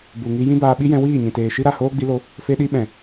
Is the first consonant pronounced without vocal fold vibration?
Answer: no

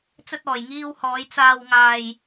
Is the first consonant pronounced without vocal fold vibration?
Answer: yes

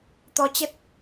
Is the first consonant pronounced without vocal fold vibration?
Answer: yes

